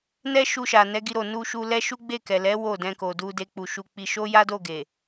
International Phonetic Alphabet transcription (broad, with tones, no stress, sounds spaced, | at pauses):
n ɛ˦ ʃ u˧ ʃ a˨ n ɛ˨˦ ɡ i˧ ɾ o˨ n u˧ ʃ u˧ l ɛ˦ ʃ u˦ ɡ͡b e˦˨ k ɛ˨ l ɛ˨˦ w o˦˨ d ɛ̃˧ k o˨ d u˧ d e˧ k͡p u˨ ʃ u˧ k͡p i˧ ʃ o˦ j a˦ d o˦˨ ɡ e˨